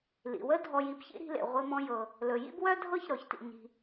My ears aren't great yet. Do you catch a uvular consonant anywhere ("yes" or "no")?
yes